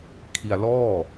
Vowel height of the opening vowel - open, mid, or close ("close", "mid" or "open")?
close